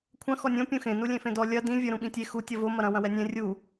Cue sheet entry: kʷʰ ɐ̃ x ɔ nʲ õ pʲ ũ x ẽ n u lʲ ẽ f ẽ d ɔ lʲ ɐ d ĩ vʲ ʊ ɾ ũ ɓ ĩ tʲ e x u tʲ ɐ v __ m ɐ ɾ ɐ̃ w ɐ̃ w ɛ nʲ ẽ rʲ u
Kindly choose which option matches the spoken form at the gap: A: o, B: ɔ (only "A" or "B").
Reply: A